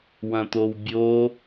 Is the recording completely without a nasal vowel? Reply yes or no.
no